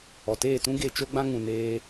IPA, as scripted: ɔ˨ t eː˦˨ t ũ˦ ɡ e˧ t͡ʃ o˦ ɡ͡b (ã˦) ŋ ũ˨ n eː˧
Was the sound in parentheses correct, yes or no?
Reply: yes